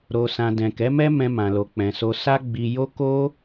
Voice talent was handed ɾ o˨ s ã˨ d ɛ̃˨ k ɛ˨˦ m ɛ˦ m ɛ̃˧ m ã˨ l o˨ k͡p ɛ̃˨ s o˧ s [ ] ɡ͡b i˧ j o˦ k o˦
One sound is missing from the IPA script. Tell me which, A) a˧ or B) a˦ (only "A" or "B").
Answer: B